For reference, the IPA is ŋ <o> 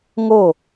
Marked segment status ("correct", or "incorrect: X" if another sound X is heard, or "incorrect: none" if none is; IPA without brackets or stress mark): correct